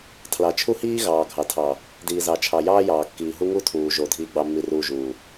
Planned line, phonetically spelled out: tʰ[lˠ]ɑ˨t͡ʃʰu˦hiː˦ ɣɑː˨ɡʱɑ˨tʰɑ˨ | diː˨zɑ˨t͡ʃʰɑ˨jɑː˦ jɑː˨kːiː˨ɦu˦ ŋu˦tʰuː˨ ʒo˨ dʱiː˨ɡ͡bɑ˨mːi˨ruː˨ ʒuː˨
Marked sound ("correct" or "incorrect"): incorrect